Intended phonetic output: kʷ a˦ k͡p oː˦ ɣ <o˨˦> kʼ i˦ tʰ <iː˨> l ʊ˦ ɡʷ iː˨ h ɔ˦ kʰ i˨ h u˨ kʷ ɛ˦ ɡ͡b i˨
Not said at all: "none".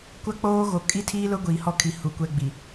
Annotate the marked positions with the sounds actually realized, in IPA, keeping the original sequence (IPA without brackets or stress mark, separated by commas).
o˨˦, iː˦